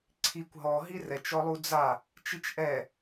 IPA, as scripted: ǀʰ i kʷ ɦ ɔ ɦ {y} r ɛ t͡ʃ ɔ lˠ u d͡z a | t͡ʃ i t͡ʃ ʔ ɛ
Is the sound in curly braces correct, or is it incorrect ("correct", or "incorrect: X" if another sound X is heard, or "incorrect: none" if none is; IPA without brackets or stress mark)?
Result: incorrect: i